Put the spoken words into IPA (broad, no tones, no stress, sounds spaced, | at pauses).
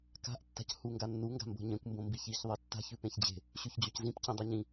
k a̤ ʔ tː a̤ c h u ŋ ɡ a nː u ŋ ɡ a̤ m b o̤ ɲ ẽ kʷ m b õ m b i ç i ç ðˤ i tː a̤ ç ʉ p ẽ ç d͡ʑ e̤ | ɕ ʉ ç d͡ʑ o c z ĩ p c ĩ dˤ ɨ ɲ ĩ